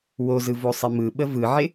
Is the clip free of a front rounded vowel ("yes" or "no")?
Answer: yes